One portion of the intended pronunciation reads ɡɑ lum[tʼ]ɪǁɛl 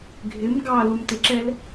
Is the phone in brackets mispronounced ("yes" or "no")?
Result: yes